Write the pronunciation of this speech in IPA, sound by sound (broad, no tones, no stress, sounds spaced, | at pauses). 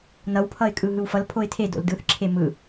n ʌ w pʰ ʌ ɪ̯ kʼ ɯ ɦ ɯ w f ʌ l pʰ o ɪ̯ tʰ e d o̰ l d ɯ θ ǁʰ e m ɯ